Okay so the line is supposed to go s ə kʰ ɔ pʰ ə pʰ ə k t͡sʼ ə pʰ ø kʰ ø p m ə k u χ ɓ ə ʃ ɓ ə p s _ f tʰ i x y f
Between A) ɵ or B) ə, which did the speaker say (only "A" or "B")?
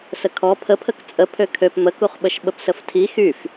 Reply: B